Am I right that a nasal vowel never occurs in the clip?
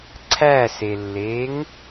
yes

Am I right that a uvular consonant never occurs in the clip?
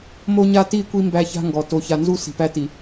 yes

